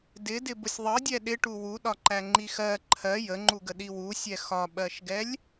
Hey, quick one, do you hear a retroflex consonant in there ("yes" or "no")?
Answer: yes